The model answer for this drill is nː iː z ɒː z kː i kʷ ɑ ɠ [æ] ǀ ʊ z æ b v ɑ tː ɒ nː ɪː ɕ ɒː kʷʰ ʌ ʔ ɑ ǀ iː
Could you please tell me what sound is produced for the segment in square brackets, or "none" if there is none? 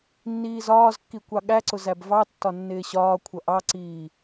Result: æ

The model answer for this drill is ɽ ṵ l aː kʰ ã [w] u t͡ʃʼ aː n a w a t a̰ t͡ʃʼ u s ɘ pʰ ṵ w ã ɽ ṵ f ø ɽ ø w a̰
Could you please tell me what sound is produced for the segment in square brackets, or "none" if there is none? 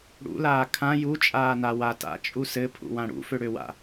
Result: j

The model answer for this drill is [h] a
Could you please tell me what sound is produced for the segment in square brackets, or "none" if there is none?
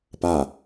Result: p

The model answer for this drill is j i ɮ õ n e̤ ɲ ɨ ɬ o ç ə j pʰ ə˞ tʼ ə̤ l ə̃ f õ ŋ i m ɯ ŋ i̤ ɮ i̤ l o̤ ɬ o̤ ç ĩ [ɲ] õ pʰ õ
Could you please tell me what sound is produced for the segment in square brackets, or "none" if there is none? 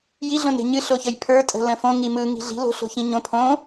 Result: ɲ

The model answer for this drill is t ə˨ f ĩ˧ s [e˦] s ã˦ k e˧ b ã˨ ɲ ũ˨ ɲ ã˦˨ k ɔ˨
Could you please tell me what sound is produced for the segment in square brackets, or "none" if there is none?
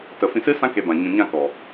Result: ɨ˦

